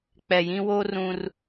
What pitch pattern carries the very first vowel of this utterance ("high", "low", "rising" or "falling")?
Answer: low